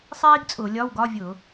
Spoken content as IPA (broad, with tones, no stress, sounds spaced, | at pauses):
sˤ iː˥ ɡ t͡sʼ ʊː˧˩˧ lʲ ɒ˧˥˧ w ɡ ɒ˧˥˧ vʲ ʊ˧˩˧